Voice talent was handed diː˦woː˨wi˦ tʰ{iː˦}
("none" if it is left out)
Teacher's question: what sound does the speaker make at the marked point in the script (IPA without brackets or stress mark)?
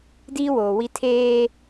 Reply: eː˦